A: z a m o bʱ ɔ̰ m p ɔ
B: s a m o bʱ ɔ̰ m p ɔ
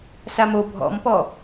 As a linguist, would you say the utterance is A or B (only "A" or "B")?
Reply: B